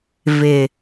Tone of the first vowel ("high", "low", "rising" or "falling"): low